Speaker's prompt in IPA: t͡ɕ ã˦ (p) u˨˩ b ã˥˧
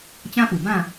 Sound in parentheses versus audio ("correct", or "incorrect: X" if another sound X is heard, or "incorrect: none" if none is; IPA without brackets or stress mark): correct